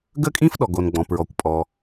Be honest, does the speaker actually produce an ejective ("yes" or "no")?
yes